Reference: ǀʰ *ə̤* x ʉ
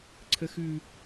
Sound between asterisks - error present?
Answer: yes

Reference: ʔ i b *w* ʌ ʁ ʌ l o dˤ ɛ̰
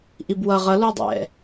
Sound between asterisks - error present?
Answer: no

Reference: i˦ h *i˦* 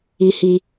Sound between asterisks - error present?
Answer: no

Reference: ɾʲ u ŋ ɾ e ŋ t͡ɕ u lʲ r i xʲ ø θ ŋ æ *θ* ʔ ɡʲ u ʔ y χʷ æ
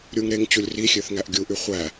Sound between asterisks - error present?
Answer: yes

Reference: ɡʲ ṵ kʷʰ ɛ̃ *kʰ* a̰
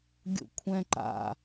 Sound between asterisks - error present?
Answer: yes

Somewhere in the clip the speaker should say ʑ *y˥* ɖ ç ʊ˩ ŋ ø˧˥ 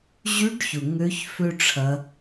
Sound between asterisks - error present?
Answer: yes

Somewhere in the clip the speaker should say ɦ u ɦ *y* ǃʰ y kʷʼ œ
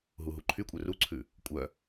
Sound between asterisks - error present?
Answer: yes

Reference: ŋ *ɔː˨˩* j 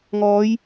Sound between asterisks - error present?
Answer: yes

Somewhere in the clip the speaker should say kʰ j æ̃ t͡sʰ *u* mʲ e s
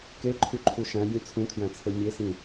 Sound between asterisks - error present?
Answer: yes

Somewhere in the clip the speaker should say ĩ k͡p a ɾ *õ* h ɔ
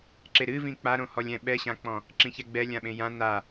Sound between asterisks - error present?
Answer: no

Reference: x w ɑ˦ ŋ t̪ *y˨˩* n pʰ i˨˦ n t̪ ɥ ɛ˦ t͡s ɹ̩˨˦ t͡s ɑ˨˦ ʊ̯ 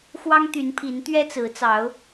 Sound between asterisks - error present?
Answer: yes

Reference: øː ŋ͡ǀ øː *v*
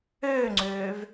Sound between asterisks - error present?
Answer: no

